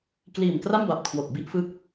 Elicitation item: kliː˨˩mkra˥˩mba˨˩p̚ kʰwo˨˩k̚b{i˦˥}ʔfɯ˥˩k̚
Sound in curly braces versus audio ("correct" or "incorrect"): incorrect